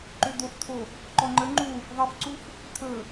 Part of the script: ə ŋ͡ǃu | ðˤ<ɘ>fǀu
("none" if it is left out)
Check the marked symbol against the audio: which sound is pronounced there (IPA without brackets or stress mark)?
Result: ɘ